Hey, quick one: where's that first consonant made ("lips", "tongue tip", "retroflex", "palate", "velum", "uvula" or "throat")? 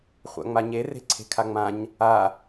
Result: uvula